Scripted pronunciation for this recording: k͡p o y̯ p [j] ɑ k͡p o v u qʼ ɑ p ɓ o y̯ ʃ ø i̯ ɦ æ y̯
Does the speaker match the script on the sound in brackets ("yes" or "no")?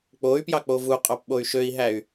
yes